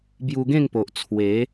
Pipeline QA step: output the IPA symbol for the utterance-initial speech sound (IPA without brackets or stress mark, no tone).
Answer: b